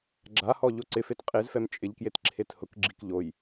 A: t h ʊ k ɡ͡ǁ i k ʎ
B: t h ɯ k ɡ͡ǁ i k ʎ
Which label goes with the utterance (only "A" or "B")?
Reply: A